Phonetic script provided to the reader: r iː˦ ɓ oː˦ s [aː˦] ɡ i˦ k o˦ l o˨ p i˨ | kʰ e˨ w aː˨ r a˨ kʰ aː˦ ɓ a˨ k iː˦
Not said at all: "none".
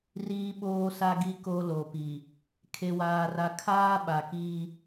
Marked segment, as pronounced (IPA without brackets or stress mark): a˦